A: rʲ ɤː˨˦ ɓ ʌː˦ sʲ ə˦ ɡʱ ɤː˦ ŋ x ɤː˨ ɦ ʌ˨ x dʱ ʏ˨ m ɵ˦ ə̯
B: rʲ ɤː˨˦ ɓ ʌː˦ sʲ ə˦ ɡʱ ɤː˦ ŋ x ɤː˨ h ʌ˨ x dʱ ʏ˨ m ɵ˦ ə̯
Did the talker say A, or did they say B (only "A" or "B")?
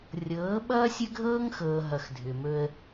A